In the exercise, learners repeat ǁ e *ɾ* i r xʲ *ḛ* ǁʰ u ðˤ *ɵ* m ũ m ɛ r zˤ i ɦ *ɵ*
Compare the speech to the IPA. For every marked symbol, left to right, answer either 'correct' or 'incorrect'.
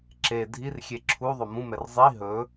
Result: incorrect: dʱ, incorrect: e, incorrect: o, correct

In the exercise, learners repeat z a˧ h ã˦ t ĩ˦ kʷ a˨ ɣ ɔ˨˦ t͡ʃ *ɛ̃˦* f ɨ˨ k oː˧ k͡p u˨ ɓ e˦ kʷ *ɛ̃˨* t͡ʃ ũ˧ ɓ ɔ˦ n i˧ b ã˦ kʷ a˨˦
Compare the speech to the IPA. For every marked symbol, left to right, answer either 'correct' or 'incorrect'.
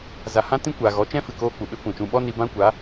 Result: correct, correct

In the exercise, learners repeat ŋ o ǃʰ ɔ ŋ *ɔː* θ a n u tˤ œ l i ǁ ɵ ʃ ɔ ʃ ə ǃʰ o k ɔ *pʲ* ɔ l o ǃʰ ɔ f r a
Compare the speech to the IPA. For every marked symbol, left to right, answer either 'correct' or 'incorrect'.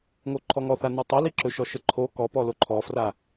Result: incorrect: ɔ, incorrect: p

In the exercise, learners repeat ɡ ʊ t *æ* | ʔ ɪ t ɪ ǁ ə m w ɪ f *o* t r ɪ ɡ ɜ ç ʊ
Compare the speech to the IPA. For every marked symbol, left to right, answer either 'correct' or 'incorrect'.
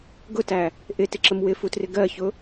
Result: correct, incorrect: u

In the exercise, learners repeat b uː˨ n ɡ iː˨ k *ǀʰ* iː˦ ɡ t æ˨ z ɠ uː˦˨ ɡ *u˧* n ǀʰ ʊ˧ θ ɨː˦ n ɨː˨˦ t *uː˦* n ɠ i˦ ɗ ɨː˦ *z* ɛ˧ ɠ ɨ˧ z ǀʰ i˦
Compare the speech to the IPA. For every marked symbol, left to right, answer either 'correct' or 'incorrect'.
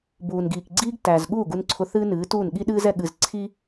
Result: incorrect: ɡ͡ǀ, correct, incorrect: uː˦˨, correct

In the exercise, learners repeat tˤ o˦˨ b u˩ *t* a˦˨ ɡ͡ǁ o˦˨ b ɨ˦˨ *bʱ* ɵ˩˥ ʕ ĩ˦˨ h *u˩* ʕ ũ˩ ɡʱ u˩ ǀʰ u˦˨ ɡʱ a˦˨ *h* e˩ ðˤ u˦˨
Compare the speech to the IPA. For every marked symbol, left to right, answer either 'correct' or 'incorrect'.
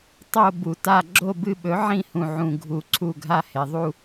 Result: correct, incorrect: ɓ, incorrect: ũ˩, correct

